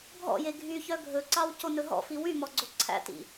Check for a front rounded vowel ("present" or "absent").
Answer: present